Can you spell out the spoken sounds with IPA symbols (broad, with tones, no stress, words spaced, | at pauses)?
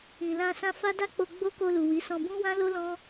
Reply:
ĩ˨lã˧ sã˧fa˦da˦k͡po˧ ɡ͡bo˦ko˧lu˨ wi˨˦sɔ̃˧bũ˦ wã˦lo˦lɔ̃˦